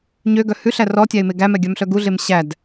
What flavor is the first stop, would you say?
plain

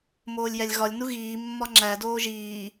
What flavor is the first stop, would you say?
click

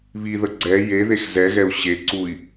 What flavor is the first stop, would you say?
click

